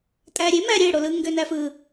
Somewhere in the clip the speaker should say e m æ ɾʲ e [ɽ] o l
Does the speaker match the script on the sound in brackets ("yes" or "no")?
yes